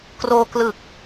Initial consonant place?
velar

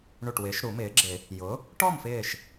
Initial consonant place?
retroflex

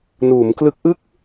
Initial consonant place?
alveolar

